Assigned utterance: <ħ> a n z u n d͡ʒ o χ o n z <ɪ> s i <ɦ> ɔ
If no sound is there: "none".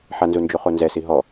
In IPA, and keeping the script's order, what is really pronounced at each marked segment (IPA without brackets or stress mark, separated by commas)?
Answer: ħ, ɛ, ɦ